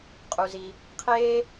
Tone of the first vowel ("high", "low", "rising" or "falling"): low